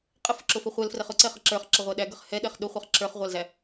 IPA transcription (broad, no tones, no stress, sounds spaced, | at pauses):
qʼ ə f ʊ ǁ ʊ f ə χʷ ɛ l f r ɛ χ ʊ ǀ ɛ χ ə ǁ ə˞ χ ǁ ə ʁʷ æ ɗ æ ɡ ə χ h ɛ ɗ ɛ χ ɗ ʊ χʷ ɛ χ ǁ ə˞ χ ʁʷ ɑ l z æ